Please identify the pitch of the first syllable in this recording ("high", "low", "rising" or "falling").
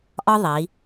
high